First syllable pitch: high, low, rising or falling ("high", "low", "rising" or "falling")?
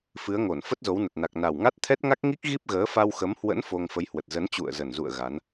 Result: rising